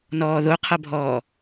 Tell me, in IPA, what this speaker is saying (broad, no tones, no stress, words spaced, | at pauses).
nɔːðoqʰʌbʱɔː